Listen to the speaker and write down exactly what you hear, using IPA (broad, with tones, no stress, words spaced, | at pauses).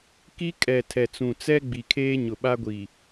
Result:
ki˦ kʼɛ˨tʰɛ˨t͡sũ˨t͡sɛ˦ ɡ͡bi˨kʰeː˦ɲʊ˨ ɓa˦ɡʷi˨